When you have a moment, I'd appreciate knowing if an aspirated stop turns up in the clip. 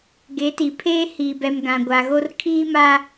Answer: yes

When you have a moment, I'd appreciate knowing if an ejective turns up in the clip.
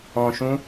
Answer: no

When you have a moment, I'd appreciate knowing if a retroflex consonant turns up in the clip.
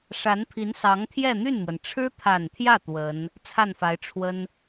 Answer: yes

